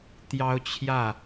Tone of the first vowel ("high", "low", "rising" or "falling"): high